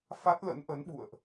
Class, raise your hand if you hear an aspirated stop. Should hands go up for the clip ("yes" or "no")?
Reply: no